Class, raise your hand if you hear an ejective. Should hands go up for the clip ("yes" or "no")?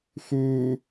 no